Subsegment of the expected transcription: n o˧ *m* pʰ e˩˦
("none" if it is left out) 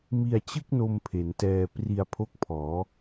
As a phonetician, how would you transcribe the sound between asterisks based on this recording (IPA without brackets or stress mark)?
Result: m